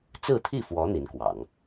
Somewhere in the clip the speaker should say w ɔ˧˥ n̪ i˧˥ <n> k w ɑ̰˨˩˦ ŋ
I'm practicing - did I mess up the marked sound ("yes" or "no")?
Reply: no